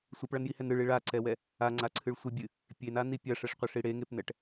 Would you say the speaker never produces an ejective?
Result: yes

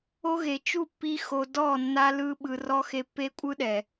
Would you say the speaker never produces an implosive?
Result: no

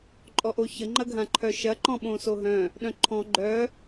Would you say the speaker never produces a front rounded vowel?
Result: no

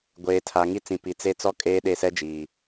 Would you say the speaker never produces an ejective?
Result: no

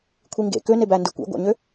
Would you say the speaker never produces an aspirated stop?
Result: no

